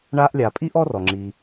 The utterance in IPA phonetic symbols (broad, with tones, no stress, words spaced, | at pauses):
ɳa˥ʔlʲa˨ pʼi˥ʔ ɔ˥rɔ˩ ŋ͡ǁi˨